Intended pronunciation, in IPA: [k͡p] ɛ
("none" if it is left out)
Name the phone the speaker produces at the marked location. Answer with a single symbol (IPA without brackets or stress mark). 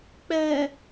k͡p